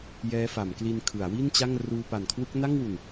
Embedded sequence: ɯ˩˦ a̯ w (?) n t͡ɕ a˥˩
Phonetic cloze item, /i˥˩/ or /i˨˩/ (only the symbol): i˥˩